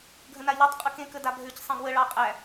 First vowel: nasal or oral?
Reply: nasal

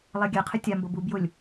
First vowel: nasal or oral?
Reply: oral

